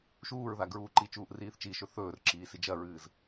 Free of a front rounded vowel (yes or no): yes